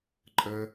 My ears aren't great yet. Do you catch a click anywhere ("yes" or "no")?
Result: yes